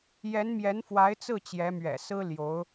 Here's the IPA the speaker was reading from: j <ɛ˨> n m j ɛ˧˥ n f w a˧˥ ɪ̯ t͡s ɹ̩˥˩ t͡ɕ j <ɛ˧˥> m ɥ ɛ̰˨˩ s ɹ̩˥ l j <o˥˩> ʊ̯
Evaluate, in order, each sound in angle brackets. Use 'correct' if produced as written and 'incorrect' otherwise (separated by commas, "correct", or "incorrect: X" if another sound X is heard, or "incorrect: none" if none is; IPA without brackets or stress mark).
incorrect: ɛ˧˥, correct, incorrect: o˧˥